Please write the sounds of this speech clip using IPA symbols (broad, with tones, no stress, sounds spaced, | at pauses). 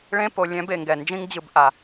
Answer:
ɭ ẽ˥ p o˨ lʲ ɛ̃˦ b e˩ ŋ ɡ ɛ˩ n d͡ʒ ĩ˦ ŋ d͡ʑ ɯ˨ b ʔ a˩